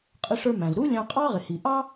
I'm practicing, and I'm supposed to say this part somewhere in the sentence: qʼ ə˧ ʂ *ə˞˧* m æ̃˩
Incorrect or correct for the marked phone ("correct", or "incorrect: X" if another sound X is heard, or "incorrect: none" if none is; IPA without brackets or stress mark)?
correct